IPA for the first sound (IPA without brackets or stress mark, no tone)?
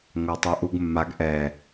ŋʷ